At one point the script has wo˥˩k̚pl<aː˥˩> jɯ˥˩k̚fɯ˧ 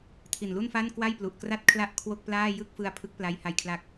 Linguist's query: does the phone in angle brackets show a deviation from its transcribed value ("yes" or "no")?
no